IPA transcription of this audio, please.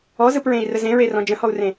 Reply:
ɔ z ɯ p ɹ ẽ i̯ r ə z ẽ ɹ e r ɔ̃ d͡ʒ ə̃ h ɔ u̯ r ẽ

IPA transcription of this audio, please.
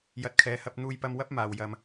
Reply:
j ɐ˨˥ t̚ kʰ ɛː˨ h ɐ˧ p̚ n̪ uː˧ j p ɐ˧ m w ɐ˥ p̚ m aː˨ w j ɐ˧ m

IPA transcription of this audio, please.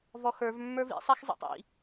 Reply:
v ɔ x ə˞ v mː ə˞ v ḭ sˤ a x zˤ ḛ tˤ ḭ

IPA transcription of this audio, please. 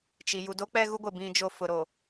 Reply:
t͡ʃ i˨ j u˨ d o˦ k͡p ɛ˦ ɣ u˦ ɡʷ ɪ˨ b ĩ˦ d͡ʒ o˦ f ʊ˨ ɾ o˨

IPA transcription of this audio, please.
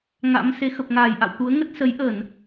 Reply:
ŋ a̰˧˥ m s e˨˦ x ə˨˩ p̚ ŋ aː˧˩ j ʔ a̰˧˨ w t̪ u˨˦ ə̯ ŋ ə˦˥ t̚ s ə˨˦ j ʔ ə˧˩˨ n

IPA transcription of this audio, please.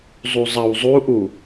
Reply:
zˤ u zˤ ɐ w zˤ u ʔ u

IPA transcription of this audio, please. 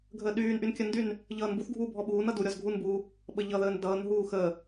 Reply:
ɡʱ əː ɗ yː n ʔ y n kʲ ə n d y n | ʎ ʌː n b u θ ɡʱ uː bʱ ɔ ɓ uː n ʌ d u ɾʲ ɔ z ɡʱ u n b uː | ɓ ə ʎ ʌ ð əː n d ʌː n ɦ uː x əː

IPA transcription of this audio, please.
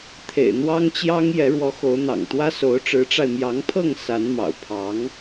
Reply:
t̪ʰ ḛ˨˩ ɪ̯ n̪ w ɑ˥ ŋ t͡ɕ j ɑ˥ ŋ j ɛ˧˥ ɻ w ɔ˧˥ x o˧˥ ʊ̯ n̪ ɑ̰˨˩ ŋ t̪ w ä˥ s o˧˥ ʊ̯ ʈ͡ʂ ɻ̩˧˥ ʈ͡ʂ a˧ ɪ̯ m j ɑ˧˥ ŋ pʰ ɤ˥˩ ŋ s a˧˥ n m ɑ̰˨˩ ʊ̯ pʰ ɑ˧˥ ŋ

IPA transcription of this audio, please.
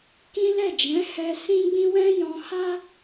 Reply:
k ĩ˦ l ɛ˦˨ d͡ʒ ɛ̃˨˦ h ɛ˧ s ĩ˦ ɡ͡b ĩ˦ w ɛ̃˦ j ɔ̃˧ h a˦

